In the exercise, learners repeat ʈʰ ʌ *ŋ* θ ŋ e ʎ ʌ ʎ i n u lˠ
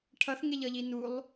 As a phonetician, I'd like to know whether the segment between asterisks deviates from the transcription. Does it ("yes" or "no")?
yes